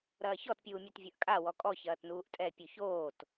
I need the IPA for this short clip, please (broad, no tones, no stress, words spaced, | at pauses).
ɾɐːçɔtpʲuːmʲøt vʲɐʔkʼa wɔkʼɔ çɐːtnuːʔtʼɛ pʲʉçoːt